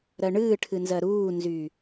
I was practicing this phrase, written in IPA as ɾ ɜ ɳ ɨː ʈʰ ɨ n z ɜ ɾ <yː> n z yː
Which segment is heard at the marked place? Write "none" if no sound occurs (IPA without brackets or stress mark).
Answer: uː